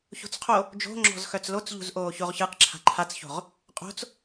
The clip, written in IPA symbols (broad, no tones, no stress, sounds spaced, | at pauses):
ç o̤ t͡s qʰ o | d͡ʒ o̤ ŋ͡ǁ ɔ̤ z x œ t͡s l o t͡s ʎ ṳ z ʔ oː ç o ʁ ç ɯ q ǁʰ a̤ ǃʰ a t͡s ç o̤ ʁ | qʼ o̤ t͡s